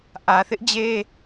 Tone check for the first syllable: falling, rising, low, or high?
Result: low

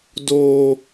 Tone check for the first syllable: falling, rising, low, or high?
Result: low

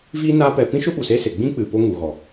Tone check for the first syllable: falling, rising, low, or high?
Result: high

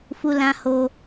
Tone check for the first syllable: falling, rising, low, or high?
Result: high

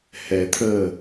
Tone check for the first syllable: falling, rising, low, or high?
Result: low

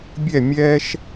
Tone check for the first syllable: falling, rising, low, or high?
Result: falling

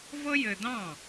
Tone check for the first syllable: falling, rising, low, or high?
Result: high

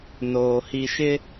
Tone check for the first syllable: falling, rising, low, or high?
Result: low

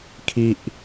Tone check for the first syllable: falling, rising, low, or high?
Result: high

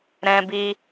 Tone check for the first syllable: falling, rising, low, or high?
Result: high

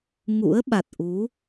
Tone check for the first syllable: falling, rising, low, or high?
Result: rising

